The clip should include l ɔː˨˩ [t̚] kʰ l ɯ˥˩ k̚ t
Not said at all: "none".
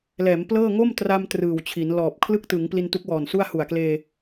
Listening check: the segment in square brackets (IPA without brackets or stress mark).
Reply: p̚